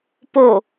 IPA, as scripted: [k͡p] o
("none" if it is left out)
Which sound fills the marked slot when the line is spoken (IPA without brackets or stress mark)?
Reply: p